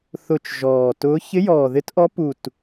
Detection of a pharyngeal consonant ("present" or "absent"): absent